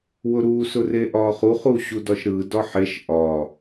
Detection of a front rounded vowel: absent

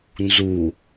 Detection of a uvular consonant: absent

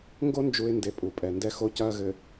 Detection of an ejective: present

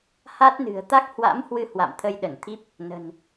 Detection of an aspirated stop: present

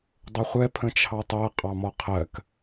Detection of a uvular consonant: present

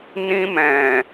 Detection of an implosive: absent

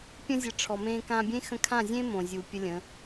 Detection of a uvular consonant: absent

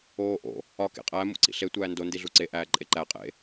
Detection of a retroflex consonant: absent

